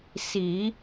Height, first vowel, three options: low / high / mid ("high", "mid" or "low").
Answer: high